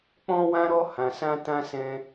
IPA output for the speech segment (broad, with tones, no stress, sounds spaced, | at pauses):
k͡p ɔ̃˦ w ã˦ ɾ ɔ˦ h ã˧ s ã˦ t ã˦ s ɛ̃˦